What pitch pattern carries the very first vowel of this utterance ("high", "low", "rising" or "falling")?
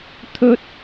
high